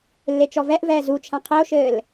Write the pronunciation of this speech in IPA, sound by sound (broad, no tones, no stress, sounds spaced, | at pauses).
lː e t͡ʃ ɔ v ɛ ʔ v ɛː z u t͡ʃʰ ã qʰ e o̯ ʃ ɘː l